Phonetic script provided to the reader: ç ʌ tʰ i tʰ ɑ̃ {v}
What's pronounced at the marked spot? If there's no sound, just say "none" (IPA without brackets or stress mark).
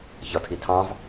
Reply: v